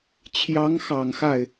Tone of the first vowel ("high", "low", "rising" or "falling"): rising